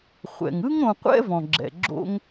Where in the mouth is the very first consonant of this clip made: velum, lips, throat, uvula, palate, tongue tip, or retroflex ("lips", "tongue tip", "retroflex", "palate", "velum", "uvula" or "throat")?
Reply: uvula